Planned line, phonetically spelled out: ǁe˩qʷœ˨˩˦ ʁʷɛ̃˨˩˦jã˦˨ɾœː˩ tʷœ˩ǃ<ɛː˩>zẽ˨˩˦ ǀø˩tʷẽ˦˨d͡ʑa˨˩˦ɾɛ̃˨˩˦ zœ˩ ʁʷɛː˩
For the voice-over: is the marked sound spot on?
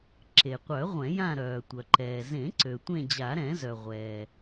yes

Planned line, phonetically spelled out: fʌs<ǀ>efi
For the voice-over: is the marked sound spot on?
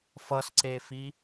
yes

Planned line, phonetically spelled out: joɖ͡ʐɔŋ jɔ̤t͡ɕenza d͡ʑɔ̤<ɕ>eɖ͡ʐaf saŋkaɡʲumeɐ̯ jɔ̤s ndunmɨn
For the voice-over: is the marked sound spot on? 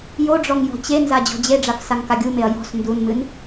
no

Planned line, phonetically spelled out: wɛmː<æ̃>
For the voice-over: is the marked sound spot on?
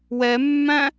yes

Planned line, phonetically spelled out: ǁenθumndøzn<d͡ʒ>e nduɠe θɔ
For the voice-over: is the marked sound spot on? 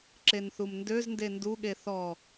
no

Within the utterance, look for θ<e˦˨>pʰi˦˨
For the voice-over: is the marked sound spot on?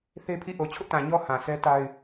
no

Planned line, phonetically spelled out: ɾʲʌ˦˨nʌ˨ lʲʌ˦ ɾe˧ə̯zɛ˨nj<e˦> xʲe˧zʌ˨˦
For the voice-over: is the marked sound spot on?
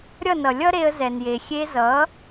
no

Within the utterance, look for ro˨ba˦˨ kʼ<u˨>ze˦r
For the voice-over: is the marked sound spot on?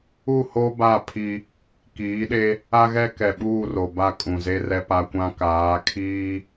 no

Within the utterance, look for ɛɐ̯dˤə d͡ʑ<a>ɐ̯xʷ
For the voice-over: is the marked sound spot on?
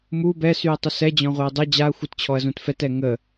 yes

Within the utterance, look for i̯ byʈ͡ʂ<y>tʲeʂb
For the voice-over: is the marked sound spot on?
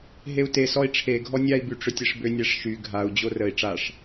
no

